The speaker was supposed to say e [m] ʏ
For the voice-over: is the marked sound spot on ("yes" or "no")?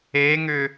no